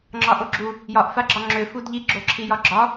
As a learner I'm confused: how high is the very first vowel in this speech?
low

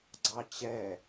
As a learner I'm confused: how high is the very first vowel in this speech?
low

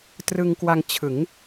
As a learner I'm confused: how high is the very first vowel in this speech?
high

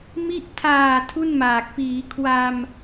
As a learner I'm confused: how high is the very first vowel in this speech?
high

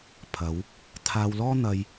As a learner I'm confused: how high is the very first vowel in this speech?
low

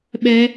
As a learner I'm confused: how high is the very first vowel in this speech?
mid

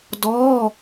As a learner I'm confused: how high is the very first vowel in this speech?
mid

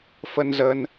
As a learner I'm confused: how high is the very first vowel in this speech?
mid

